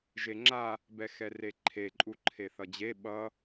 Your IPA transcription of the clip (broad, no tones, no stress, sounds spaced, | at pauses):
ʒ e ŋ͡ǁ a | b ɛ x ɛ r e ǃʰ e ǃʼ u ǃʰ e θ ʌ d͡ʑ e ɓ ʌ